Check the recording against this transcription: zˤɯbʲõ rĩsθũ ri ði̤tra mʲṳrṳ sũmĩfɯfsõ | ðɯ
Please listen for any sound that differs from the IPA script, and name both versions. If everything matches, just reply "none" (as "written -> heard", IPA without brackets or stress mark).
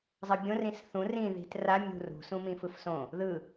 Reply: i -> ĩ